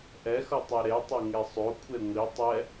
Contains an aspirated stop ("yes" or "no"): yes